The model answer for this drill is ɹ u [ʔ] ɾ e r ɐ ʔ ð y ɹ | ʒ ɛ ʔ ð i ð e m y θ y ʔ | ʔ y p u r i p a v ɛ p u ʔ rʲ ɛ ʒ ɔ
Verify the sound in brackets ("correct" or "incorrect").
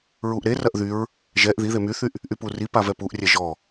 correct